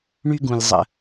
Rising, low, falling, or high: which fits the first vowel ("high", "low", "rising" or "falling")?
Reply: high